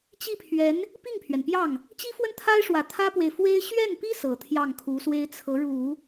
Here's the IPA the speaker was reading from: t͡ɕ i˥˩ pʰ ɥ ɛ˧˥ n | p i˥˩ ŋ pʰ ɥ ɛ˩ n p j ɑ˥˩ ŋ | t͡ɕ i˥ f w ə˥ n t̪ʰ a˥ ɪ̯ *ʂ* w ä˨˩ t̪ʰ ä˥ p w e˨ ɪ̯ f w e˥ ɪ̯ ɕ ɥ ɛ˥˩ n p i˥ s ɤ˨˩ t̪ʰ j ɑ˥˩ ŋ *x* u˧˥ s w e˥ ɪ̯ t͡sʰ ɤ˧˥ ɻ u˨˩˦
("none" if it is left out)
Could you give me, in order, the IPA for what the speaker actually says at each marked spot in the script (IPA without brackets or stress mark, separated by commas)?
ʂ, kʰ